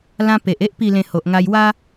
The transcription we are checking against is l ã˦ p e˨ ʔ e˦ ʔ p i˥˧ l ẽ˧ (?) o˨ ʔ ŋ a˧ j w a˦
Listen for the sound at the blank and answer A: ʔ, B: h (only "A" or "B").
B